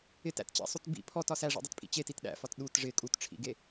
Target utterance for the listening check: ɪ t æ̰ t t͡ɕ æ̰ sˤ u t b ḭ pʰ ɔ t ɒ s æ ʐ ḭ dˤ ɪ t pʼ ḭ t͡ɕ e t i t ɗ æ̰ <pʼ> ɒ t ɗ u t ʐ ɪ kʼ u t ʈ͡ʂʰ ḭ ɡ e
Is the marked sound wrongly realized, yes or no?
yes